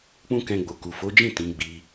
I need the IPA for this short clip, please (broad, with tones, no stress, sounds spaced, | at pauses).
k͡p ũ˦ k ɛ̃˧ ɡ͡b o˨ k u˨ f o˨˦ d͡ʒ ĩ˦˨ t ĩ˨˦ ɡ͡b i˧